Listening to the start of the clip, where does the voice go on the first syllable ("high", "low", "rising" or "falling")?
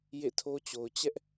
falling